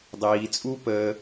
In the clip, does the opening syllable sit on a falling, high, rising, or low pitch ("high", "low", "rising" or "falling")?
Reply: low